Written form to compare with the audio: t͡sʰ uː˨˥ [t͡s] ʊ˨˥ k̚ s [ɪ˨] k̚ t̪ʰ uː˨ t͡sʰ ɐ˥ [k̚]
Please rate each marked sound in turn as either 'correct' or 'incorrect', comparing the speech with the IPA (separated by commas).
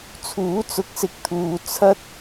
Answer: correct, correct, incorrect